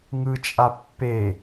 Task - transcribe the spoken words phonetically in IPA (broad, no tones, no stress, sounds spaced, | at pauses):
ŋ ɯ t͡ʃʼ a pː e